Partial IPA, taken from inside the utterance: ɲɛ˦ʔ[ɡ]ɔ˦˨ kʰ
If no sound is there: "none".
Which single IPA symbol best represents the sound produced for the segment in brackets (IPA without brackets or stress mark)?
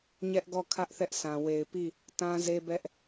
ɡ